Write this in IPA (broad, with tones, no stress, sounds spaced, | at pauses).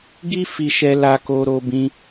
ɡ i˦ f i˧ ʃ ɛ˧ l a˧ k o˧ ɾ o˧ b ĩ˧